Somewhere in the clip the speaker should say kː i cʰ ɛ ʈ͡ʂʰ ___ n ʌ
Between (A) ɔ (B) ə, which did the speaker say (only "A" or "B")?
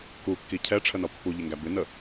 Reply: B